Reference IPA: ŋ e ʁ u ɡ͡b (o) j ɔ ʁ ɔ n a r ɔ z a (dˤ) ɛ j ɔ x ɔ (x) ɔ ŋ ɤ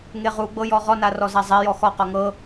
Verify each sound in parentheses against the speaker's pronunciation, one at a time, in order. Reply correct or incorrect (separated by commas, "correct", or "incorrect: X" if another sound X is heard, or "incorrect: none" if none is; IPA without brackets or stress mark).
incorrect: ɤ, incorrect: zˤ, incorrect: q